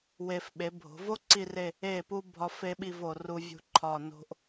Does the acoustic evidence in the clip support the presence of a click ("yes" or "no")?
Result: yes